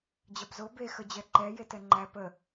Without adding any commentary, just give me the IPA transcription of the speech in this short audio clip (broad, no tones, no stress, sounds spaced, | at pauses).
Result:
d͡ʑ ɐ b z o b e x ə d͡ʑ ɛ ǃ ɛ j e t ɛ ŋ͡ǃ æ p ə